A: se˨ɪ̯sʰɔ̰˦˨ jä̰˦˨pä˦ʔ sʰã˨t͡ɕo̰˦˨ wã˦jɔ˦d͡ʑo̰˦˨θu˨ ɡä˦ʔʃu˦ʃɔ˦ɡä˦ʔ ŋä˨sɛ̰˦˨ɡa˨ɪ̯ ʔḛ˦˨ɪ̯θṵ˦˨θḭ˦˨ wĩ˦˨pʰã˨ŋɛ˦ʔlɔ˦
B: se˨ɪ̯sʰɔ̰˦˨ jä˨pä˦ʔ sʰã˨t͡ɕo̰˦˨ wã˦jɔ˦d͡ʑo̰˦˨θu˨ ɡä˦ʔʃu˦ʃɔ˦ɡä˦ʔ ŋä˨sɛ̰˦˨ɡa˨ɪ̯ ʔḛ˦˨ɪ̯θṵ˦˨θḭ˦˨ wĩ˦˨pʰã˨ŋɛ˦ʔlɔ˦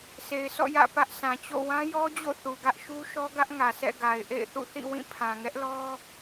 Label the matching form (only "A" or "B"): A